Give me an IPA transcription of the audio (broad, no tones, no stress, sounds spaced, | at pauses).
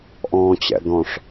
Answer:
ʔ ɔ̃ː t͡ɕ ɛ̰ d̪ ɔ̃ ʂ